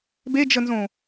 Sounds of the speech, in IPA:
b e d͡ʒ ə n z õ

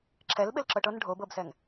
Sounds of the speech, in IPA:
ǁʰ ɛ l ɓ ɪ l ǁ ɤ ʈ ɤ n ɖʱ o b ɤ b s ɛ ŋ

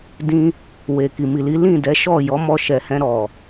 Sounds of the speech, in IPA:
d ĩ˧ | w e˨ k i˨ m i˨ l i˨˦ l ĩ˦˨ d ɛ˨˦ ʃ ɔ˦˨ j ɔ˨˦ m ɔ˧ ʃ ɛ˨ h ɛ̃˧ ɾ ɔ˨

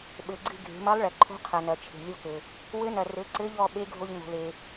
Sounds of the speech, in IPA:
ɓ ɘ˩˧ ɡ͡ǀ ɨ˧ ɡʱ e̤˩˧ m ɐ˧˥ lˠ ɭ ɛ˩ ǃʰ o̤˧˥ qʰ ɐ˩ n ɐ˩ t͡ʃʰ e̤˩ lʲ o˧˥ k ɘ˩ | w ɘ˧˥ n ɐ˩ r ɘ˩˧ ǀ ɘ˧˥ ʎ ɔ˧ ɓ e˧˥ ɡʱ o˧ ʎ n o̤˩ l e˩

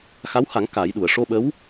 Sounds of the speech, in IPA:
x a˧˥ w h a˨˩˦ ŋ k aː˨˩˦ j ɗ u˨˩˨ ə̯ ʂ o˧ ɓ ə˧˥ w

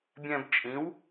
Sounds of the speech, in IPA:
bʲ ɛ̃˧ b t͡ʃʼ ĩ˩˥ w

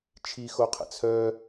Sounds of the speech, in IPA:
t͡ʃʰ i x o qʰ ə̰ t͡sʰ œ

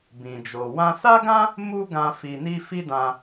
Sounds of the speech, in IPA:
b ĩ˧ d͡ʒ o˧ w ã˧ s a˦ ɡ ã˦ | m u˦ ɡ ã˧ f i˧ n i˦ f i˦ d ã˧

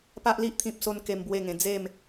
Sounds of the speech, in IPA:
p a˦ ʔ l i˦ ʔ t̪ʰ ĩ˦ p̚ s o˦ n k e˦ m b w e˥˧ ŋ ẽ˧ d͡z e˥˧ m

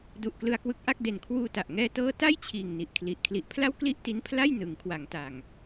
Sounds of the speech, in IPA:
d u˨˩ ʔ k l ɯ˧ a̯ k w ɯ˦˥ k̚ ʔ a˥˩ k̚ d e˨˩ n kʰ w uː˧ t a˨˩ ʔ ŋ ɛː˧ t ɤː˦˥ t a˥˩ j t͡ɕʰ iː˨˩ ŋ n i˨˩ ʔ kʰ l i˨˩ ʔ kʰ l i˨˩ ʔ pʰ l a˥˩ w k l i˥˩ ʔ t i˦˥ n pʰ l a˥˩ j n ɯ˩˦ ŋ kʰ w a˩˦ ŋ t a˨˩ ŋ

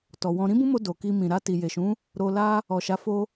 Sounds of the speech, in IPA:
t ɔ˨ w ɔ̃˧ ɾ ĩ˦ b ũ˦ m o˧ d o˨ k i˧ m ĩ˨ ɾ a˧ t i˨ j e˨ ʃ ũ˨˦ | ɾ o˧ l a˦ | ɔ˨ ʃ a˨˦ f o˧

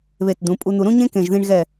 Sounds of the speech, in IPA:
β e˧˩ t d̪ ũ˩˧ pʼ u˧ n̪ u˧ ɾ ũ˥ ɲ ẽ˥ k ẽ˧˩ ʒ ð ĩ˧ ɳ ɣ ɛ˧˩

